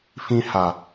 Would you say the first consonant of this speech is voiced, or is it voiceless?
voiceless